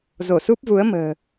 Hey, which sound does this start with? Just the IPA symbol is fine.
z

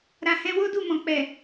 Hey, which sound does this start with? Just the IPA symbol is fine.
ɾ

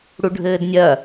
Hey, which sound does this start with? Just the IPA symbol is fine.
ɽ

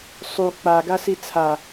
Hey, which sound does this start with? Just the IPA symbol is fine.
sˤ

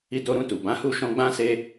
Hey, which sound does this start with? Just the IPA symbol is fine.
i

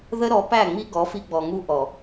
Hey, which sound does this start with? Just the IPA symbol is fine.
ð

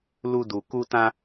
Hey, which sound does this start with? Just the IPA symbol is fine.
l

